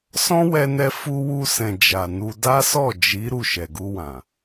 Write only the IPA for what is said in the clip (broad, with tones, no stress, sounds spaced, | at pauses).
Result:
s ɔ̃˦ w ɛ˧ n ɛ˧ f u˧ w u˧ s ɛ̃˨ d͡ʒ a˨ n u˧ d a˦ s ɔ˦˨ d͡ʒ i˨˦ ɾ u˦˨ ʃ ɛ˨ ɡ u˧ w ã˨